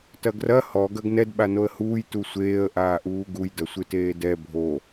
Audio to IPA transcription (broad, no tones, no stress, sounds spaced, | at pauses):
t ɐ ɡ r ɐ h ɔ ɡ ɐ ɡ n ɛ d ɓ a n o ə̯ h uː j t u sʷ eː ə̯ ʔ aː ʔ uː ɡ u j d ɐ sʷ ɨ t eː d ɛ bʱ o